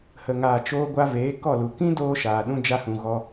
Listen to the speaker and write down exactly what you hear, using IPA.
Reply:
h ə˨ ŋ aː˨ t͡ʃ oː˧ ɡʷ a˧ v eː˨˦ k ɔ˦˨ l u˨ k ĩ˦ d oː˧ ʃ aː˨ ɗ ũ˧ d͡ʒ a˧ h ũ˨ ɣ ɔ˧

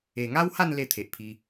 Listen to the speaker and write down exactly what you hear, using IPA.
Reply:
e˨˩ ŋ a˦ w h a˥˧ n l e˥˧ t̪ʰ e˨ ʔ pʰ i˧

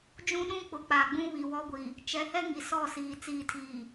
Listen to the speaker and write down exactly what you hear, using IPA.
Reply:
d͡ʒ ũ˦ ɗ ũ˦ k͡p ʊ˨ k͡p a˨ ɡ͡b ũ˦ β i˨ w ɔ˦ ɡʷ i˨ | t͡ʃ ɛ˨˦ h ɛ˦ ŋ i˨ s ɔ˦˨ s iː˨ t͡s iː˨ tʰ iː˨

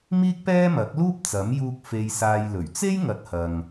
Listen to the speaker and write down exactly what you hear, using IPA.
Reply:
m iː˥ k̚ p ɛː˥ m ɐ˨˥ k̚ l uː˥ p̚ t͡s ɐ˨˥ m j uː˧ k̚ f e˧ j s aː˧ j l ɵ˨˩ ɥ t͡s e˥ j ŋ ɐ˨˥ t̚ h ɐ˨ ŋ

